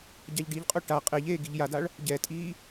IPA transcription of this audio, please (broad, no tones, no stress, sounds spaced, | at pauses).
ɟ a ʎ ɖ i ʎ qʼ o ʈ a qʼ e ʎ eː ɡ i ʎ j a d a ɭ | ɟ ɛ tʼ iː